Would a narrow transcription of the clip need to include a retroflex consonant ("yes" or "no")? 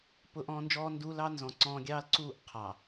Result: no